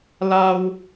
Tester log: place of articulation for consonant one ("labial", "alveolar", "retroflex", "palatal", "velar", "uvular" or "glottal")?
alveolar